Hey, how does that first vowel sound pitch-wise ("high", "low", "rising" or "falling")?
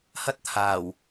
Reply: high